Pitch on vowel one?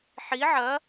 rising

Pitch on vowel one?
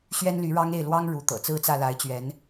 high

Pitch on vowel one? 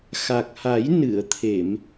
low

